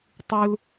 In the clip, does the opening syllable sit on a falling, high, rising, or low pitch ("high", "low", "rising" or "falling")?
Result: high